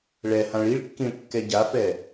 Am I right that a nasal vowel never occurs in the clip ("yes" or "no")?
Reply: no